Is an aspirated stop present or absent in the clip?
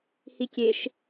absent